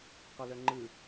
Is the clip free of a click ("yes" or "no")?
no